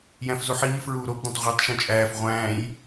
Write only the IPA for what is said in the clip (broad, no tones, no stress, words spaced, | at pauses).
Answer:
jæ̃fzuħiː fɹuːɾob dẽtˤʁʷetˤ ʃũt͡ʃʼæːf ʁʷæ̃ːj